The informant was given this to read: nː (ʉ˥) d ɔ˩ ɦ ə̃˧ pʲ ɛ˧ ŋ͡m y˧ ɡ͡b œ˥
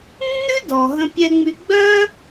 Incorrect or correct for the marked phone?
correct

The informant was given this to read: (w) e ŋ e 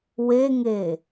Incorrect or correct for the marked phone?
correct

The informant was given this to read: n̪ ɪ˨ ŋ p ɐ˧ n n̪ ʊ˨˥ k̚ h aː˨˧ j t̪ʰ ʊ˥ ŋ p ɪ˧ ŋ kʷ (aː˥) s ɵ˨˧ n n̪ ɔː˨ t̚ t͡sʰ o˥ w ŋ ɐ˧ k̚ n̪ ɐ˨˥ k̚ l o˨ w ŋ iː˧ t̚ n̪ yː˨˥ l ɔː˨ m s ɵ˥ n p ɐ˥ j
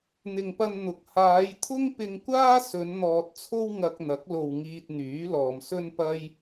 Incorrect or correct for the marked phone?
correct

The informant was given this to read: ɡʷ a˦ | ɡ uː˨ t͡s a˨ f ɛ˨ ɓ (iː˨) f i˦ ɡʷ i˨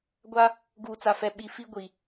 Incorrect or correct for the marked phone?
incorrect: i˨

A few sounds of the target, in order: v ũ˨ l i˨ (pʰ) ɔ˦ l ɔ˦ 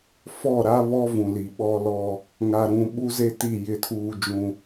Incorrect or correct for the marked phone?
incorrect: ɓ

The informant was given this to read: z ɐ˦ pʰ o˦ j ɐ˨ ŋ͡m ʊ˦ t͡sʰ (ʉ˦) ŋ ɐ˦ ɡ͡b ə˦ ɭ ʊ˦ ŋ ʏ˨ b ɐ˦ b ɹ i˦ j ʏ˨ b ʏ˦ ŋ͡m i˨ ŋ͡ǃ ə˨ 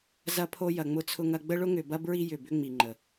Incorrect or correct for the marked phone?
incorrect: ʊ˦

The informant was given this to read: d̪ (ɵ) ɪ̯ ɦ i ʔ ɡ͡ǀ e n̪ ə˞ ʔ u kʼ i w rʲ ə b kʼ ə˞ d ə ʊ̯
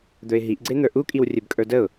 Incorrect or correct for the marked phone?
correct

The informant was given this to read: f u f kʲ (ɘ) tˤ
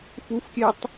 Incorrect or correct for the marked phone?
incorrect: ɛ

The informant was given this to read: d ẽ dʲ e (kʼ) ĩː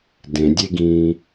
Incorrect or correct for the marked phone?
incorrect: ɡ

